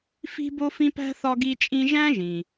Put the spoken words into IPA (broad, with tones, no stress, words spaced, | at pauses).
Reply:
fi̤˥bo˥fĩ˥pæ̤˥ θɒ˥ɡi˥t͡ʃʼĩ˥ ʒæ̃˥ʒĩ˩